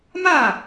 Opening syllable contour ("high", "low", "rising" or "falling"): falling